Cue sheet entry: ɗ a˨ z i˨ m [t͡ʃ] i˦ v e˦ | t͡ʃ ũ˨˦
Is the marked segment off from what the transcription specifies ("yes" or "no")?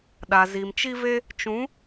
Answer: no